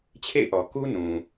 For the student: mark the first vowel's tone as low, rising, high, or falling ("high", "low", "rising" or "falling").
falling